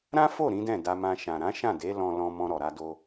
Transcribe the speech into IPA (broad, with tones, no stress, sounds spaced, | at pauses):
ɾ ã˦ f o˦˨ ɾ ĩ˨˦ d ɛ̃˦˨ d a˧ m ã˧ ʃ ã˨ ɾ ã˨˦ ʃ ã˦˨ d e˨˦ l ɔ̃˧ l ɔ̃˧ m ɔ̃˧ ɾ ɔ˨ ɾ a˧ d o˧